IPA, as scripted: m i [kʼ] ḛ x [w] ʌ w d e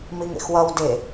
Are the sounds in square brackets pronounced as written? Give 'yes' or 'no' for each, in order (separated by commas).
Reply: no, yes